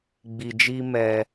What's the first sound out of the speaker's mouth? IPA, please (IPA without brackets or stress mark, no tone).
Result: ɡ͡b